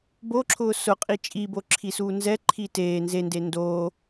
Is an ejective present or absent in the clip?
present